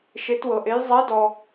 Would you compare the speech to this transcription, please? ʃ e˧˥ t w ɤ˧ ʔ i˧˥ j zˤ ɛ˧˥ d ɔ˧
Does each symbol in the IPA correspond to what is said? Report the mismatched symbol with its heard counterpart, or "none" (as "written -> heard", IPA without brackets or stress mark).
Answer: i˧˥ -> e˧˥